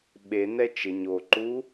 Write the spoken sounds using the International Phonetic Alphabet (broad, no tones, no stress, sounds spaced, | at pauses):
ɓ e n ɛ t͡ʃ ɪ ɲ o ǃ u